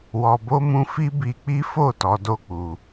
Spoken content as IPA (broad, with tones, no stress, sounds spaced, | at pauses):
w ɔ˧ b o˦ m ũ˦ f i˦ b i˧ k͡p i˦ f o˦˨ t ɔ˨˦ d o˦ k͡p u˧